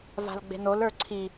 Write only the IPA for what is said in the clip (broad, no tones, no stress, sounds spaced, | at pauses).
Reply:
v a̤ l ɡ͡b e̤ n o l ə˞ ǀʰ i